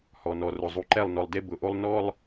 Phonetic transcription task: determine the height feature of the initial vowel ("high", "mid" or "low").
mid